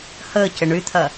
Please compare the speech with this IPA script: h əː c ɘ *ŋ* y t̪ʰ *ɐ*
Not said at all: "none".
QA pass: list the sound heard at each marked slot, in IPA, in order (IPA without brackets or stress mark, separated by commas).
ɳ, ɐ